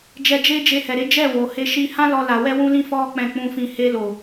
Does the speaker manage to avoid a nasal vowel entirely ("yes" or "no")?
no